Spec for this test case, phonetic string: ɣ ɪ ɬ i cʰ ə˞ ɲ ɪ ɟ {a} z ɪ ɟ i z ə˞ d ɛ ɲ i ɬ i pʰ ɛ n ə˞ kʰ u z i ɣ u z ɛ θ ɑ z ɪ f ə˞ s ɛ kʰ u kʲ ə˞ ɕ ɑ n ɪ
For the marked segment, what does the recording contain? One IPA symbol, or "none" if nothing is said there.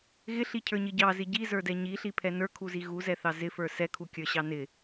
ɑ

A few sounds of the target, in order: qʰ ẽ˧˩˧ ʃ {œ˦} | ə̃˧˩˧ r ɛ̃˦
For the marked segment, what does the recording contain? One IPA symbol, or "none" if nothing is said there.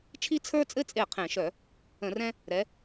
œ˧˩˧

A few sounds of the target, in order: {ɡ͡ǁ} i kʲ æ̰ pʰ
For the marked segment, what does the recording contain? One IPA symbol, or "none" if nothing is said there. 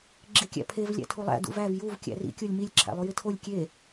ɡ͡ǁ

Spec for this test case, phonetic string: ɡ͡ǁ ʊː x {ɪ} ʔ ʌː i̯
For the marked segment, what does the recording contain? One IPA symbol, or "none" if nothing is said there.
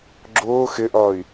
ɪ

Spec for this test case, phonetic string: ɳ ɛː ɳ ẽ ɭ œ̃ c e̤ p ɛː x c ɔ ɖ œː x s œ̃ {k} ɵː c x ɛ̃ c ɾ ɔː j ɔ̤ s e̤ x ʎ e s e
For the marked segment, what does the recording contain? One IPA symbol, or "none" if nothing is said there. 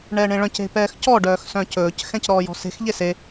c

